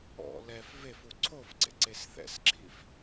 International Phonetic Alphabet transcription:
ɔ̰ l ɛ f v e f u ǀʰ o f ɡ͡ǀ ḛ ǀ e s θ ɛ̰ s ǁʰ i f

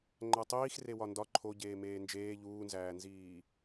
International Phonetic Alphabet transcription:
ŋ͡ǃ æ tˤ iː x r e w ɒ n d ɒ ǃʰ o ɟ eː m eː n d͡ʒ eː ʎ uː n z æː n z iː

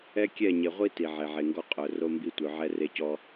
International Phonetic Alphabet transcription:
ɛ˦ kʲ ɛ˦˨ ɲ e˨ ʁʷ i˦ t i˨ ʕ e˨ ʕ e˨ ŋ ɡ ɔ˦ qʼ œ˨ r o˦ m b i˦ tʷ œ˨ ʕ ɛ˦ r e˦ c ɔ˦

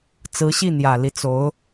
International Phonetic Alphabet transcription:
t͡s ɹ̩˧˥ ɕ i˥˩ n̪ j ä˨˩ l i˦ t͡s o˧˥ ʊ̯

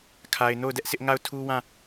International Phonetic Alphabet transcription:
kʰ a˨ ɪ̯ n o˦˨ ʊ̯ d ɛ˦ ʔ s ɪ˦ ʔ ŋ a˦˨ ʊ̯ tʰ u˦ w ã˦˨

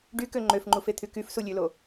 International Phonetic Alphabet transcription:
ɖ y k ø ŋ͡ǃ ø f ŋ͡ǃ u f e t̪ʰ y k y f s u lʲ ø l o

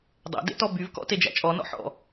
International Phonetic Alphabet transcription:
dˤ æ̰ d ḛ t ɔ b y v k ɔ̰ t e d͡ʒ æ̰ t͡ʃʼ ɔ n ɔ̰ ħ ɔ̰

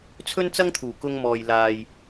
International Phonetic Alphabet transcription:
t͡sʰ ɵ˥ n t͡s ɐ˥ ŋ t̪ʰ uː˨˩ k ʊ˧ ŋ m ɔː˨ j l aː˨ j

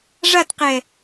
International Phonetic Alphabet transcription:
ʐ a t q ɛ

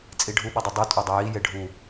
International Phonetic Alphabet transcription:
t͡sʼ i ɖʱ u ɓ ʌ dˤ ʌ dˤ u tʼ o dˤ ʌ j i j e ɖʱ u

